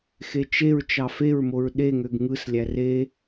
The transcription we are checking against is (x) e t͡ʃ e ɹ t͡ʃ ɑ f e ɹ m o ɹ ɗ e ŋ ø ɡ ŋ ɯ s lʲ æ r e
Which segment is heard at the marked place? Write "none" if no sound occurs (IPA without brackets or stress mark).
x